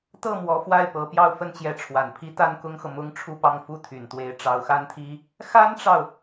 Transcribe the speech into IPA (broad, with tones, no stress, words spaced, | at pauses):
t̪ɤ˥˩ mwɔ˧˥fwa˥˩ɪ̯pɤ˧˥pjɑ˥˧ʊ̯ fə˥˩nt͡ɕjɛ˧˥ʈ͡ʂʰwa˨˩npʰi˥ t̪a˥nkʊ˥ŋxɤ˨ mʊ˥ŋʈ͡ʂʰu˥˧pɑ˥˧ŋ fu˥˩t̪ʰy˨˩nt̪we˧˥ɪ̯ ʈ͡ʂɑ˧˥ʊ̯xa˥nt̪ʰi˥ | xa˥nʈ͡ʂɑ˨ʊ̯